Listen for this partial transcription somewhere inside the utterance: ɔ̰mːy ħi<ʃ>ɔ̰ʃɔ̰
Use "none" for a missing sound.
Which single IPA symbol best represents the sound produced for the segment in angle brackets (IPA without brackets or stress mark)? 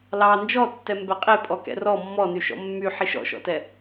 ʃ